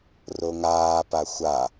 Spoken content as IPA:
r o ŋ aː p a xʷ a

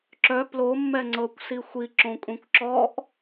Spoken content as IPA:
ǁ œ p l o mː ɛ ŋ͡ǀ ɤ kʷ s i xʷ i ǁ õ kʷʼ ĩ kʷ ǁ ɔ ʔ

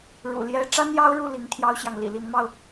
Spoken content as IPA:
ɻ ṵ˨˩ l j ɛ˧˥ ʈ͡ʂ a˥ n j ɑ˥ ʊ̯ ɻ u˥˩ l i˧˥ ŋ t̪ʰ j ɑ˥ ʊ̯ ɕ j ɑ˨ ŋ l ḭ˨˩ l i˧˥ n m ɑ˧ ʊ̯

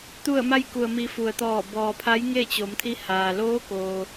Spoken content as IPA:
t̪ u˧˩ ə̯ m a˧ j k u˩ ə̯ m i˩˧ f u˩ ə̯ t̪ ɔː˧˩ b ɔː˩ pʰ a˧˥ j ŋ e˥˨ t͡ɕ o˩˧ m t̪ʰ i˧˥ h aː˩ l oː˧˥ k oː˩

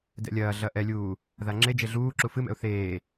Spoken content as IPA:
d ɛ̰ lʲ ɐː ɮ ɐ ʔ ɛ lʲ uː | ð a ŋ͡ǁ e d͡ʒ e ɮ uː ǁ u f ɨ m ɛ̰ ʊ̯ θ eː

